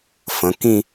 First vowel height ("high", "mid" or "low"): mid